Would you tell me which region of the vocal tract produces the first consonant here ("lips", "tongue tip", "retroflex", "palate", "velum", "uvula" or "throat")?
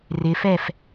tongue tip